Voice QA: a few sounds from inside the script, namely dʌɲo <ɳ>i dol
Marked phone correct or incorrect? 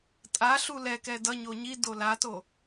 incorrect